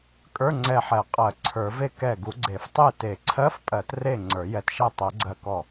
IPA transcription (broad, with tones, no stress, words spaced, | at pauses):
kʼə˞˧˥˧ŋ͡ǀɛ˧˩ħɛ˨˩˦qʼɜ˨˩˦ ǀʰə˞˨˩˦ve˥˩ kɛ˧˩ɡu˨˩˦ɡ͡ǀe˨˩˦ftˤe˥˩ te˨˩˦ǀʰɜ˧˥˧fpʼɜ˨˩˦t re˥˩ŋ͡ǀə˞˨˩˦ jɛ˧˩tʃɜ˥˩tˤɛ˨˩˦ ɡ͡ǀɜ˧˩kɔ˧˩